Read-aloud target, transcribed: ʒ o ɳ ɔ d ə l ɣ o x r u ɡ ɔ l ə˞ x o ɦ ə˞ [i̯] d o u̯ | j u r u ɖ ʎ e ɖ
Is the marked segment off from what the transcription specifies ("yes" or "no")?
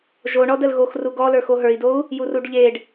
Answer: no